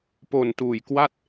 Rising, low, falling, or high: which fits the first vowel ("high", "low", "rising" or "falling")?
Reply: low